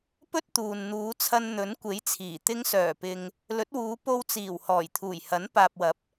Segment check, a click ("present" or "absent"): absent